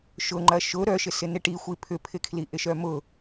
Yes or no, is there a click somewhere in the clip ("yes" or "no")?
yes